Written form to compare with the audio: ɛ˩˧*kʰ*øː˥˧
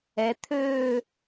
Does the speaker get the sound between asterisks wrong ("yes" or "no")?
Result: yes